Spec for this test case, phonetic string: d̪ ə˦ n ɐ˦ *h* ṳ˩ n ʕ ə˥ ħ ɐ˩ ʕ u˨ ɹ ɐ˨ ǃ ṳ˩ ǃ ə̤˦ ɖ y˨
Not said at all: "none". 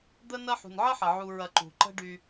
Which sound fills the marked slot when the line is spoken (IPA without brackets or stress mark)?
ħ